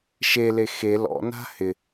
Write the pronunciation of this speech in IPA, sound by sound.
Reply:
ʃ e l e x e l ɔ̰ n a̤ h ɪ

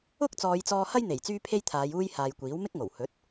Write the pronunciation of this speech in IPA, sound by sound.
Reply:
ʊ˥ k̚ t͡s ɔː˨˧ j t͡s ɔː˧ h ɐ˥ j n̪ e˨˩ j t͡s yː˥ pʰ e˥ j t̪ʰ aː˨˧ j uː˧ j h aː˨ j kʷ iː˨˥ w m ɪ˥ k̚ ŋ o˨˩ w h ɵ˨˥ t̚

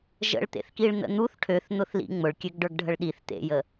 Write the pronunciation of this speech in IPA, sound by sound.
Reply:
ʒ ə̰ ɭ t̪ ḛ θ k i ɭ n̪ ə̰ n̪ u θ ʈʰ ø θ n̪ ʊ θ l ḭ ŋ͡m ʊ ɭ kʲ ø ɡ ɖ ə˞ ɡ ɖʱ ə ɭ ɗ i θ t̪ ḛ j ə

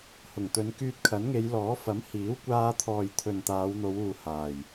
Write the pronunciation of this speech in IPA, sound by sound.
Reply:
h ʊ˨˩ ŋ t̪ ɵ˨˧ n k yː˧ t̚ kʰ ɐ˨˥ n ŋ e˨˧ j l ɔː˨˥ f ɐ˨˥ m h iː˨˥ w kʷ aː˧ t̪ʰ ɔː˨ j t̪ʰ ɵ˨ n t̪ aː˨˧ w n̪ o˨˧ w uː˨ h aː˨˩ j

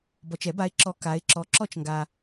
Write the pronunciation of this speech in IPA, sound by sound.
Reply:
b ɔ˨ t͡ʃ ɛ˨˩˦ b a˨˦ ɪ̯ ǁ ɔ˨˦ k a˨˦ ɪ̯ ǁ ɔ˨˦ ǁ ɔ˥˧ t͡ʃ ŋ ɡ a˨

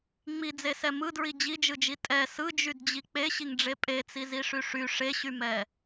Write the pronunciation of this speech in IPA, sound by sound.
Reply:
ŋ͡m i d͡z e s ɛ m ɯ d ɹ i d͡ʑ i d͡ʒ ɯ d͡ʒ i tʼ ɛ s ɯ d͡ʒ y d d͡ʑ i k͡p e ɕ i ŋ ɖ͡ʐ e pʼ e t͡s i z i ʂ y ʂ y ʂ e ɕ y m ɛ

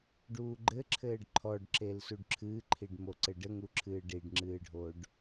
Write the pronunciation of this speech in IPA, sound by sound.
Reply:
ɖ uː ɡ͡ǃ ɘ ǁʰ ɘː ɖ ǃʰ ɔ ɖ ǁ e l s u ɖ ǁʰ ɨː ǃʰ i ɖ m o ǀ ɘ ɖ ɘ ŋ u ǁʰ ɨː ɖ i ɖ ŋ͡ǁ ɨː ɖʱ o ɖ

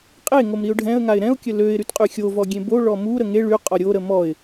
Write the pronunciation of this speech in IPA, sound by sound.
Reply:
qʼ e ŋ o m ɾ i ʊ̯ ɖʱ ɛ̃ ə̯ ŋ a ɪ̯ ɾ ɛ̃ ʊ̯ kʲ ə l ø ɪ̯ ɾ y t qʼ y xʲ o v ɔ ɡʲ ẽ b o ɭ ɔ m u ɾ ə ŋ e ɭ y qʼ ɔ ɾʲ o ɾ ə m ɔ ɪ̯

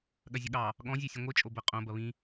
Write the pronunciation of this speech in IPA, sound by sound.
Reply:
ɠ ɐ zʲ ʊ ɠ ɑ | ɠ ɔ̃ zʲ e sʲ ə̃ ŋʷ e t͡ʃʼ o b ə qʼ õ b ɐ β ĩ

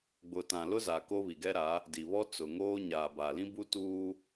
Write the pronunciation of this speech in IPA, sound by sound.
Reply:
ɡ͡b ʊ˨ t ã˨ l ʊ˦ z a˨ k o˦ β i˨ ɡ ɛ˦ ɾ a˨˦ | d i˨ β ɔ˦ t͡s ʊ˨ ŋ oː˦ ɲ aː˨ b a˨ l ĩ˦ b u˦ t uː˦

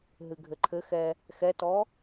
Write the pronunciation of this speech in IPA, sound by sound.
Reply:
ɦ ɨ ɡʱ ɘ ǃʰ ɘ x ɛ | x ɛ t ɔ

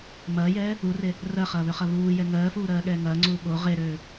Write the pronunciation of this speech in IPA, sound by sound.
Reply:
m ɐː j ɛː | u r e | r ɜ χ ɐː β ø χ ɐ β uː j ɛ ŋ ɜː f uː ɾ ɜː ɠ ɛː ŋ ɐː ŋ͡ǀ uː ɠ o ʁ e ɾ øː

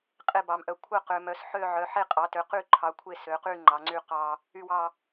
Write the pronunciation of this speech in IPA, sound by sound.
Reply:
qʼ e˦˨ b ɑ˩˧ m ʔ œ˩˧ kʷʰ œ˦˨ q ø˩˧ m œ˩˧ s ħ ø˦˨ ʕ œ˩˧ ħ e˦˨ qʼ ɑ˩˧ t ø˩˧ q y˦˨ ǃʰ ɑ˩˧ kʷʰ e˦˨ s ø˩˧ q y˦˨ ŋ͡ǃ ɑ˩˧ ŋ͡ǀ y˦˨ q ɑ˦˨ | y˦˨ w ɑ˦˨

